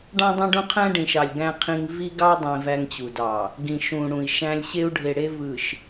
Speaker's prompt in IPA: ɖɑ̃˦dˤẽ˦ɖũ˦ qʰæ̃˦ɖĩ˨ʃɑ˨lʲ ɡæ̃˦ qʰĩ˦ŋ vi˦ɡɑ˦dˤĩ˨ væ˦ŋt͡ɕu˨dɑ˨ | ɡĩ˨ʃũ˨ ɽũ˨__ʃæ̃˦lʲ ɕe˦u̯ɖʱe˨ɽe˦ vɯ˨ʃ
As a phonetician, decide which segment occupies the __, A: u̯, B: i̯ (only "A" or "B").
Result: B